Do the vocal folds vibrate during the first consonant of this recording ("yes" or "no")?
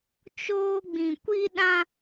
no